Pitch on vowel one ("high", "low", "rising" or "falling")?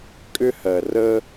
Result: high